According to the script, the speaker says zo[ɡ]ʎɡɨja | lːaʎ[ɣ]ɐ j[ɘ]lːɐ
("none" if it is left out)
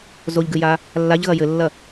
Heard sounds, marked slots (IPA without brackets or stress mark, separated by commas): none, ɣ, ɘ